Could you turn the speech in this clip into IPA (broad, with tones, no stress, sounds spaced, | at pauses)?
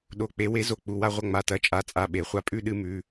ɗ o˩˧˩ k͡p e˨˩˦ w e˨˩˦ z o˩˧˩ k͡p u˩˧˩ w a˥˧ ʁʷ ɐ˥˧ ŋ͡m a˩˧˩ t ɐ˩˧˩ t͡ʃʼ a˩˧˩ t͡sʼ a˩˧˩ ɓ e˨˩˦ χʷ a˧ pʼ ʉ˥˧ ɗ ɨ˥˧ m ʉ˩˧˩